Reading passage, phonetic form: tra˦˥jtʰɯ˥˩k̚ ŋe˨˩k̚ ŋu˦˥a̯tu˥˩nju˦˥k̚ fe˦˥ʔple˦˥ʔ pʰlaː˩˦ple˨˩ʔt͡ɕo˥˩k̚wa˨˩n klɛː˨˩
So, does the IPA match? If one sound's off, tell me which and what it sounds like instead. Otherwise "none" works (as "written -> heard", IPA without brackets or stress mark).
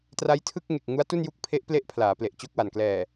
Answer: f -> pʰ